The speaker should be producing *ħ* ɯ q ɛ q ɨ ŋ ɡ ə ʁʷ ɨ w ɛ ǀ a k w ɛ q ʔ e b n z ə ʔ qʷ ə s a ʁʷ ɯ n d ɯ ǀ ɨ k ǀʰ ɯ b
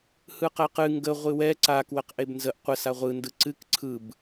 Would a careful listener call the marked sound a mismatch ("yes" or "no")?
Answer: yes